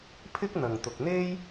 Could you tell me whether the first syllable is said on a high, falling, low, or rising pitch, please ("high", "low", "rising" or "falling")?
high